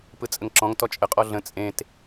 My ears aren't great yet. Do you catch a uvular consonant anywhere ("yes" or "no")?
yes